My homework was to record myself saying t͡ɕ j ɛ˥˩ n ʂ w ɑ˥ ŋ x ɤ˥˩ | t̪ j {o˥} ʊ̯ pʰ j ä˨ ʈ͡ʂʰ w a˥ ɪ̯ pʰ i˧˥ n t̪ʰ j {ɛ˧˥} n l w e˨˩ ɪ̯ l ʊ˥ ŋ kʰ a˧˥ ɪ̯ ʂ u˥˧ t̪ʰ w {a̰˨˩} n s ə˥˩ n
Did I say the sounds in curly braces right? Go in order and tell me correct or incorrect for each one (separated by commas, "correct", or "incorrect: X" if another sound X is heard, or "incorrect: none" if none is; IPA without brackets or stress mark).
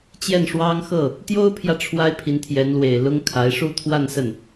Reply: correct, correct, incorrect: a˥˧